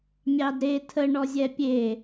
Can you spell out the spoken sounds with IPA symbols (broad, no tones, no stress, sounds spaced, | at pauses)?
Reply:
mʲ ɑ d ɾ e tʰ ə ɳ ɔ zʲ ɛ pʲ e